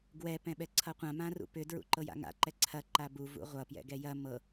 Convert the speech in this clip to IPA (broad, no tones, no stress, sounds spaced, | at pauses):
ɡ w ɛ p ɛ̃ ɓ ɛ ǀʰ ʌ qʷ ã m ã r ṵ p ʏ d ɹ ṵ ǃ ɤ j a̰ ŋ a̰ ǃ ɛ ǀʰ ɐ ǃ a b u v ṵ ʁʷ ʌ p j ɛ̰ ɡ ɛ j ɐ m ɤ